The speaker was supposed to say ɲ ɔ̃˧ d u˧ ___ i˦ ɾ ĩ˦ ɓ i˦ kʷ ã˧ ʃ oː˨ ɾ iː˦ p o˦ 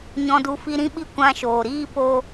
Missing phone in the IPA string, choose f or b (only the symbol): f